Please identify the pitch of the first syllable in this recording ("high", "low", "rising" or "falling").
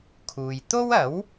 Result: low